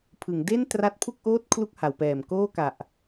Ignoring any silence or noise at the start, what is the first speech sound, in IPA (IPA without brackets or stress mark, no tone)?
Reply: pʰ